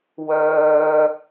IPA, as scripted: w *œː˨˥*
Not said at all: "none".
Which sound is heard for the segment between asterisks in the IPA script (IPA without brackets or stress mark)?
œː˥